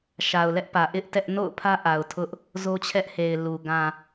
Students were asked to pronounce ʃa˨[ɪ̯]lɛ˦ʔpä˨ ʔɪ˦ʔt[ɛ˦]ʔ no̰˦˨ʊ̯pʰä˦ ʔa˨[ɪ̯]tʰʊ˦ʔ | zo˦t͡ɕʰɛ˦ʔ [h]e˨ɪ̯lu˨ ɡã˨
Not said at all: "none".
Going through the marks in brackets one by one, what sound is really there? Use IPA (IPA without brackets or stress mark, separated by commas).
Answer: ʊ̯, ɛ˦, ʊ̯, h